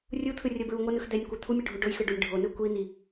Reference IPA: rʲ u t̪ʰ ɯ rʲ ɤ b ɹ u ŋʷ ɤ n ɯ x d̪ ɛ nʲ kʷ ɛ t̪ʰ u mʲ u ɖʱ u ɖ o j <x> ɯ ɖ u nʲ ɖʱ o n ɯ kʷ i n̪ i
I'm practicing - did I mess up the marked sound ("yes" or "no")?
no